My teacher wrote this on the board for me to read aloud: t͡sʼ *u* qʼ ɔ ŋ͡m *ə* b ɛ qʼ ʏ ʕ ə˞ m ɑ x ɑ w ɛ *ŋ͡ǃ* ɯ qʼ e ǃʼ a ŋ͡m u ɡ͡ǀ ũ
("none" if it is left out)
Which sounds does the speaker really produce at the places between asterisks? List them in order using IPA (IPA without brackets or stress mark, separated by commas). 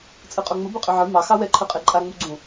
ɯ, ə, ǃʰ